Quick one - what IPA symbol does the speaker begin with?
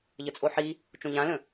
ʎ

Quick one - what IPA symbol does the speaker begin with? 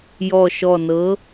j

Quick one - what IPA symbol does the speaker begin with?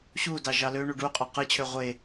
ɕ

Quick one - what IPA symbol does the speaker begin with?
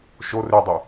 ʃ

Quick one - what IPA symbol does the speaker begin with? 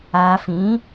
aː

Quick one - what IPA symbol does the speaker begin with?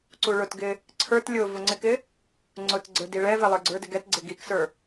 ǀ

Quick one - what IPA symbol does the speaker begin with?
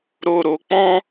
ɾ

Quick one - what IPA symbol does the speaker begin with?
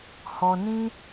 h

